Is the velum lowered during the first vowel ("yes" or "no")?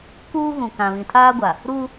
no